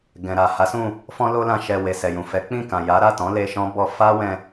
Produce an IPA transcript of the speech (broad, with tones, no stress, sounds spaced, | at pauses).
ɡ ɛ̃˨ ɾ a˨ h a˨˦ s ũ˦˨ | f ɔ̃˦ l o˦ l ã˧ ʃ ɛ˧ w e˨ s ɛ˨ j ũ˨ f ɛ˨˦ k͡p ĩ˦˨ k ã˨ j a˨˦ ɾ a˦˨ t ɔ̃˨˦ l e˧ ʃ ɔ̃˦ b ɔ˧ f a˦ w ɛ̃˧